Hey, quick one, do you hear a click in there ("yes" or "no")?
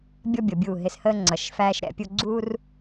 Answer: yes